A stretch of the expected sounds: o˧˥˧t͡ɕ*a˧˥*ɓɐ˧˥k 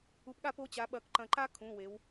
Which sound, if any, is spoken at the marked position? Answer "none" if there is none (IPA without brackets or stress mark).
a˧˥